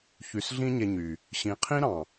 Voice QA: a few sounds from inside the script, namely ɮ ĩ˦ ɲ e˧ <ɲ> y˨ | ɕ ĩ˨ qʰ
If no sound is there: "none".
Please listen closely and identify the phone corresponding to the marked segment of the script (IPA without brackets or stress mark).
ɲ